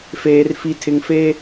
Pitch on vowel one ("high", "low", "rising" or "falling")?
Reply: high